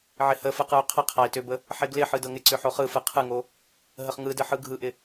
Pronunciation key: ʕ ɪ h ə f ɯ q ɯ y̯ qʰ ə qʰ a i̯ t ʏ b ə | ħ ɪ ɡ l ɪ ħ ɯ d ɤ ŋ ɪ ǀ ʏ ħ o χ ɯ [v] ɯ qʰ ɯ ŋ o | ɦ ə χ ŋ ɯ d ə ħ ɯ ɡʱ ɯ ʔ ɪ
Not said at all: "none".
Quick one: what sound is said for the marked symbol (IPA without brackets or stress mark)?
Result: f